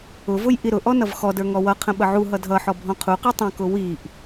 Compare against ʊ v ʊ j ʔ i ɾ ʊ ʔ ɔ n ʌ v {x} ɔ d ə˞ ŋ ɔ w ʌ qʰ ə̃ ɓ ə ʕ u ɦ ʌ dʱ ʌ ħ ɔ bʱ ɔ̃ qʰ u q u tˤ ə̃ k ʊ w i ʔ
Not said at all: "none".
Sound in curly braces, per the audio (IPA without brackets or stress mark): x